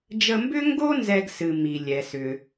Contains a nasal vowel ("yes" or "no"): no